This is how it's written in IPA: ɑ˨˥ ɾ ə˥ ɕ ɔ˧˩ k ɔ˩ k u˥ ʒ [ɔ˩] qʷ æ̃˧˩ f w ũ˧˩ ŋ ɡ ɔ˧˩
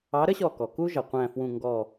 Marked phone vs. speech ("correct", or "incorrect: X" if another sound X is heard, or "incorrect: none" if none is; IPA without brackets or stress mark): incorrect: ʌ˩